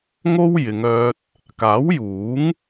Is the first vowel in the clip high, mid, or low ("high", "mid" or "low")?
mid